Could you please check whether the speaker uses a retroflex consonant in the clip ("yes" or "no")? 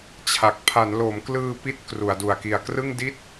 no